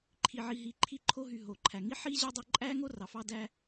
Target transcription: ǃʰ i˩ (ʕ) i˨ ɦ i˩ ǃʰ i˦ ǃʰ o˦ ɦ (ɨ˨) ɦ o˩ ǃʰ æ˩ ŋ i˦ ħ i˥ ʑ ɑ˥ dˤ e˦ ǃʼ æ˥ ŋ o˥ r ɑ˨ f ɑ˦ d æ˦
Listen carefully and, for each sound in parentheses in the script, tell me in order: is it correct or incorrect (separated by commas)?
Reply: correct, incorrect